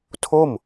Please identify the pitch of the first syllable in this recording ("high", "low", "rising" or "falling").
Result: falling